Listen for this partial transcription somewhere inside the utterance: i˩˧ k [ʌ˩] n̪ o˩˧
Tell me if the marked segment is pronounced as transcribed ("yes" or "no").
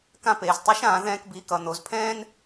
yes